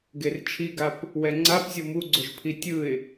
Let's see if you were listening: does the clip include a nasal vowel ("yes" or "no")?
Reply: no